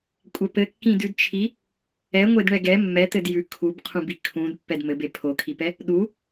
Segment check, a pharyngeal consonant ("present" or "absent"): absent